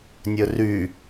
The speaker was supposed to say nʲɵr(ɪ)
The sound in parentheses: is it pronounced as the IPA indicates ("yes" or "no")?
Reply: no